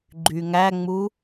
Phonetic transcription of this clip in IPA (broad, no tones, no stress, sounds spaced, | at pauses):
ɡ͡ǃ y ŋ æ ŋ͡m u